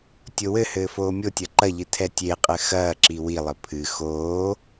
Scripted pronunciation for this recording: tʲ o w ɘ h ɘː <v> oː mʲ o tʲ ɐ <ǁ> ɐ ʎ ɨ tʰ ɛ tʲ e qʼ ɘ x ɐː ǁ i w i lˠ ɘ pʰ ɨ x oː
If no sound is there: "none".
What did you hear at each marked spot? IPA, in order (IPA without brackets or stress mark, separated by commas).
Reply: f, ǃ